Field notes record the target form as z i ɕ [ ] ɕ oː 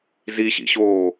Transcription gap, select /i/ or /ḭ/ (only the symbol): ḭ